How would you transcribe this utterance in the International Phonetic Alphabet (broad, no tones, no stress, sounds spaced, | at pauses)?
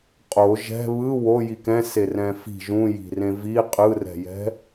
qʼ o ʒ ɛ̤ β ɯ w o j i k ɛ̃ s e r ɛ̃ f i̤ ʒ ũ j i̤ r ẽ v i qʼ ɯ r ɛ̤ j ɛ̤